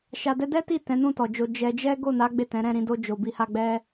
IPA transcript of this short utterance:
ʃ a˧ d ɛ˦ d ɛ˦ t i˦˨ t ɛ̃˨˦ n ũ˦˨ t ɔ˨ d͡ʒ o˧ d͡ʒ ɛ˧ d͡ʒ ɛ˦ ɡ o˦˨ n a˨˦ ɡ͡b e˦˨ t ɛ̃˨˦ ɾ ɛ̃˦˨ ɾ ĩ˨˦ d o˧ d͡ʒ o˨ b i˧ h a˧ ɡ͡b ɛ˦

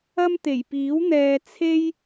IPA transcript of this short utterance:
ɐ˥ m t̪ e˨˩ j p iː˨˥ w n̪ ɛː˧ t͡sʰ e˥ j

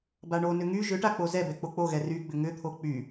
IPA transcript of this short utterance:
b a ɳ o n ʏ ŋ y ʒ ʏ ʈ a k͡p o z ɛ b ɛ k͡p o k͡p o ɣ ɛ r y ɡ͡b ʏ ŋ ʏ t̪ʰ o k͡p y

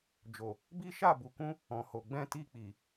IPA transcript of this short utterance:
d͡ʒ o˨ | b i˦ ʃ a˦˨ b u˨ k ũ˧ | ɔ̃˨ h o˨ ɡ͡b ɛ̃˧ t i˧ k͡p i˨

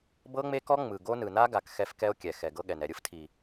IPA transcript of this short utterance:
b ɤ˦ ŋ͡m e˦ k ɔ˦ ŋ͡m ɯ˨ ɡ o˦ n ɯ˨ n a˦ ɡ a˨ k x ɛ˦ f k ɛ˦ o̯ kʲ ɛ˨ x ɛ˨ ɡ ɤ˦ ɠ ɛ˨ n ɛ˨ ɾʲ ɯ˦ f tʰ i˨

